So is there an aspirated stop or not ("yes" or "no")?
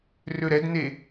no